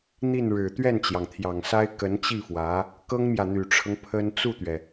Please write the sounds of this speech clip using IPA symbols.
n̪ i˥˩ n ɻ ɻ̩˨˩ t̪ ɥ ɛ˥˩ n t͡ɕ j ɑ˩ ŋ t̪ʰ j ɑ˨˩ ŋ s a˥ ɪ̯ k ə˧˥ n t͡ɕ i˥˩ f w ä˧˥ | k ɤ˥ ŋ m j ä˨ n̪ y˨˩ ʈ͡ʂʰ ɤ˦ ŋ pʰ ə˥ n t͡s u˥˩ t̪ ɥ ɛ˩

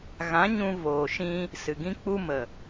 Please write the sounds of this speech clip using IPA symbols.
ɣ ã˨˦ ɲ ũ˧ v oː˨ ʃ ĩ˧ | s ɨ˨ ɡ ĩ˦ k͡p u˦ m ə˨

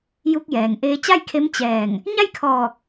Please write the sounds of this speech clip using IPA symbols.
j u˧ k̚ j ɛː˩ ŋ ʔ eː˧ t͡ɕ a˥˨ j kʰ e˧˥ m t͡ɕ ɛː˧˩ ŋ | ɲ a˥˨ j kʰ ɔː˧˩ k̚

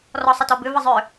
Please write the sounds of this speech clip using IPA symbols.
r ɔ sˤ ə t ɔ b ʏ v ə zˤ ʏ

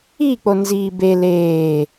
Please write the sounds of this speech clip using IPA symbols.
i k͡p o n z iː b e l eː

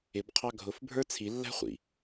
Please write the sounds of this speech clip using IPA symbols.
ɪ b qʰ ɑ ɡʱ ʊ f bʱ ə˞ t͡sʰ i lː æ̤ χʷ ḭ

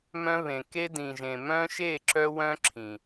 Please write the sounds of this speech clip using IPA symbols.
m œ̃˦ β ẽ˨ k e˦ d ĩ˨ ʒ ẽ˨ m œ̃˦ ʃ e˦˨ ǁ œ˦ w œ̃˦ ǁʰ ĩ˨

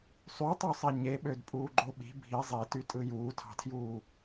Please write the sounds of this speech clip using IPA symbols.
sˤ y tˤ ø sˤ e ɲ e ɓ ø d pʼ uː ɡ͡ǃ o ɓ i̤ bʱ i zˤ i t y tʼ ɯ j uː tʰ ɑ̤ tʰ j uː

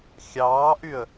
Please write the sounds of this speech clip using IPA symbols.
xʲ ɑː ʔ y ə̯

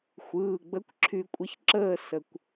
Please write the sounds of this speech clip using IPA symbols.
xʷ ɯː˩˧˩ ɡ͡b ə˧˥ kʷ ǁʰ y˧ kʷʼ ə˧˥ ç ǁ əː˥˧ s ə˧ kʷ

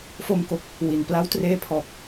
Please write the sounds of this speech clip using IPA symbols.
f o˧ m k o˨˩ k̚ | w i˩˦ n p l a˦˥ w t r eː˦˥ pʰ ɔː˨˩ k̚

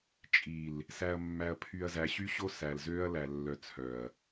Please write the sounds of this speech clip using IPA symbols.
t͡ʃʼ i˨ l | s æ˨ ɐ̯ mː æ˨ ɐ̯ pʰ y˨ ɐ̯ z æ˨ ɕ y˦ ɕ o˦ s æ˨ l z ø˦ ɐ̯ l æ˨ lː œ˨ t͡sʰ œ˨ ɐ̯

